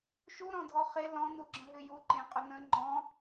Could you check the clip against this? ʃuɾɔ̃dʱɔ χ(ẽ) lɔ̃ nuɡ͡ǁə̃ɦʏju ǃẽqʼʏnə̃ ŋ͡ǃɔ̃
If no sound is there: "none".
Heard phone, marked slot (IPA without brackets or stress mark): e